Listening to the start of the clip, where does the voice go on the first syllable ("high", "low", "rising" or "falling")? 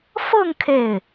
falling